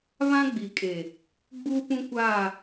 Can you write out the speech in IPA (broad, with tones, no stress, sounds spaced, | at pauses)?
β ã˦ ɡ͡b i˨ kʼ e˨ | ɡ͡b uː˦ p ũ˦ kʷ aː˦˨